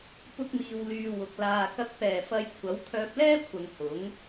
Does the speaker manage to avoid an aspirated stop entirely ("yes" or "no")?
no